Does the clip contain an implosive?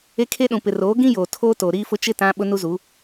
yes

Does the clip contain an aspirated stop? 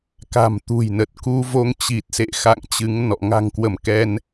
no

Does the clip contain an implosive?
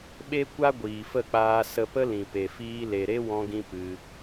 yes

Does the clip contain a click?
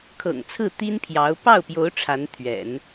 no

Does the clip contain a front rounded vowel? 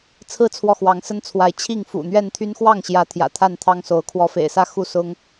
yes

